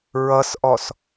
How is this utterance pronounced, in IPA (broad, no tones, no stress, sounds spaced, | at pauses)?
ɹ ʌ s ʔ ɔ s